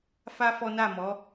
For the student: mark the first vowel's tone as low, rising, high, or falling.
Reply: high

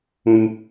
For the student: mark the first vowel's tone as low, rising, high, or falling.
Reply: high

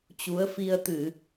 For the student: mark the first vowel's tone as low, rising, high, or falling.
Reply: rising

